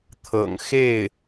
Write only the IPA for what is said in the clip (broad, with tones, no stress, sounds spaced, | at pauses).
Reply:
t̪ʰ ɤ̰˨˩ ŋ x e˥˩ ɪ̯